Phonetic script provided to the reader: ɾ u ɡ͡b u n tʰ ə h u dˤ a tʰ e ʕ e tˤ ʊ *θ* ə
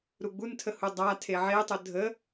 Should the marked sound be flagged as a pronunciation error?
yes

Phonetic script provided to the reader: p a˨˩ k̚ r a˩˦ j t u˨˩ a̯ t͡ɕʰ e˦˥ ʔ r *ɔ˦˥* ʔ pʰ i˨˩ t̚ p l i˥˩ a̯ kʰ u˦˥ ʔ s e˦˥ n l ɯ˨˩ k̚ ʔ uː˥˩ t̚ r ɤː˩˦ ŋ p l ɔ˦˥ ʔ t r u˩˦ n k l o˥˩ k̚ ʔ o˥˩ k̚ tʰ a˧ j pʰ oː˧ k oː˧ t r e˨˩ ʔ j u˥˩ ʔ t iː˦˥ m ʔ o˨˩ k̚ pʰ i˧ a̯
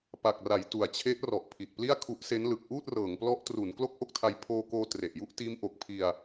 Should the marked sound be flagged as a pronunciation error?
yes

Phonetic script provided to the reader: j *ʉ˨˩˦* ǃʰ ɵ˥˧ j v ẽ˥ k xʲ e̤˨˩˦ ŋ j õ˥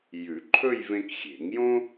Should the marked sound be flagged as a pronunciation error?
no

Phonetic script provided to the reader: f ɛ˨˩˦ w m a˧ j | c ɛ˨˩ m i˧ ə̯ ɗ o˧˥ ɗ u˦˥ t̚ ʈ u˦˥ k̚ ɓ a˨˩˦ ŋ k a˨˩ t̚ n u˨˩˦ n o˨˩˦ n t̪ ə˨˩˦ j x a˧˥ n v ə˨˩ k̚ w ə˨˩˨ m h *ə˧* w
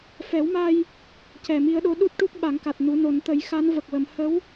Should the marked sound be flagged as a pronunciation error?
yes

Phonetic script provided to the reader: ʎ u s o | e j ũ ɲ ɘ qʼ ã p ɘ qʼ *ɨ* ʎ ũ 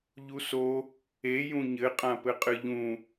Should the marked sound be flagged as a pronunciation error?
no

